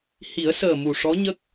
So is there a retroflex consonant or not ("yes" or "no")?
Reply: yes